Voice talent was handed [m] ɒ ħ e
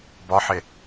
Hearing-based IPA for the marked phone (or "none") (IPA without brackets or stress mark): b